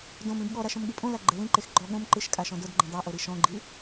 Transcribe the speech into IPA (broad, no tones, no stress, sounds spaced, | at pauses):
d õ m ĩ b ɠ ɔ ɾ a ʃ õ m ɠ i pʼ õ l a ɡ͡ǃ ɘ l ĩ ǃ e x ɡ͡ǃ ɔ ɠ õ m ǃ ɨ ʃ kʼ a ʃ ɔ̃ d o d ɡ͡ǃ ĩ dˤ a ʔ o ɾ i ʃ ɔ̃ ɡ͡ǃ i